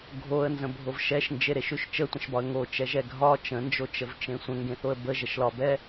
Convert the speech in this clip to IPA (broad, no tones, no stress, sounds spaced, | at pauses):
ɡʱ o ə̯ n z ə̃ bʱ o v ʃ ɛ ʃ n d͡ʒ e ɾ e ʃ ʉ ʃ t͡ʃ ə tʷ ə̃ ʃ b ɒ ə̯ ŋ o t͡ʃ ɛ ʒ ɛ ɡʱ ɒ t͡ʃ ə̃ n d͡ʒ o t͡ʃ ə v t͡ʃ ẽ sʷ ə̃ ŋ ɡ ẽ θ o ə̯ b ə ʒ ə ʃ l ɒ b ɛ